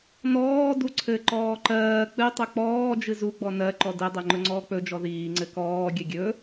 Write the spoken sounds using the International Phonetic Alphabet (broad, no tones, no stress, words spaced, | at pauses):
nɔː duǀʰɘ ǃɔːǃɜː k͡pɨ tˤɵk͡pɔː d͡ʒɨzu ɡ͡bɔnɜ ǃɔdɘ dˤɜŋ͡ǃɵŋ͡ǀɔːk͡pɵ d͡ʒɔðiː ŋ͡ǀɘkɔː ɡʲɘɡʲɵ